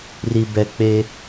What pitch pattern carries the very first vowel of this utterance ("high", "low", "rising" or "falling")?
low